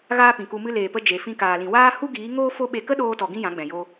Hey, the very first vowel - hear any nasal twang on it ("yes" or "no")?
no